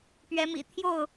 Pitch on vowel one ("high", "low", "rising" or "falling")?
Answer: rising